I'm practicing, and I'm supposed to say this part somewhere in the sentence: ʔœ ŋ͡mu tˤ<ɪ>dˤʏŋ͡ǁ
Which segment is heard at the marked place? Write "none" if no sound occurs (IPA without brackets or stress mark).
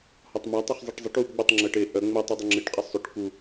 y